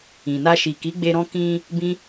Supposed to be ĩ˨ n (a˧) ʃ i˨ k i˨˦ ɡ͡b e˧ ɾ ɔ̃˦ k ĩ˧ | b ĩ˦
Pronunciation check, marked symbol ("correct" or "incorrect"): correct